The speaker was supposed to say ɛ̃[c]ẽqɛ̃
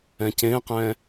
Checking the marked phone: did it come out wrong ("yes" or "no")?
no